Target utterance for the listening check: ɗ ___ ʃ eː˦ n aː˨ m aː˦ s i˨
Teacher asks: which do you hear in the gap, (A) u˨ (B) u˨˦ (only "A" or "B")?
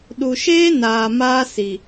A